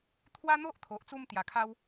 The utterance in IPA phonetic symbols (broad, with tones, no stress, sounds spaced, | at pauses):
t̪ʰ w a˦ n̪ o˦ ʔ t̪ʰ o˨ ʔ t͡s u˧ m t̪ j a˨˩ kʰ a˦ w